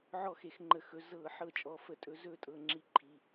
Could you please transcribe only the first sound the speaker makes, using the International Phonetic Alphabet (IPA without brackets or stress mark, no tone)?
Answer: ʕ